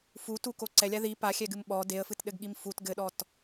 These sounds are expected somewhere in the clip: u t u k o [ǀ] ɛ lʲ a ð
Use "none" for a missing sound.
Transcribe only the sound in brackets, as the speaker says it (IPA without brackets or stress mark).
ǀ